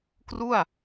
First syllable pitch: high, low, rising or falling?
falling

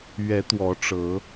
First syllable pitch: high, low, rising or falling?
rising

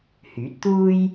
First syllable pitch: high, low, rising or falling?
rising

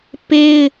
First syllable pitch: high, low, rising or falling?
high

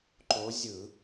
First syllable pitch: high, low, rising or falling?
rising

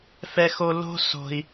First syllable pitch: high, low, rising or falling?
high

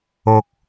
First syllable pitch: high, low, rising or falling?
low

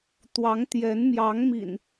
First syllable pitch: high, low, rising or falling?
rising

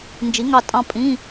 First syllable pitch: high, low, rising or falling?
rising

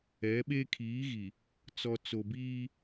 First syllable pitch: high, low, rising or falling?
rising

